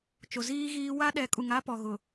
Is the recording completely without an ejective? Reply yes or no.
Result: no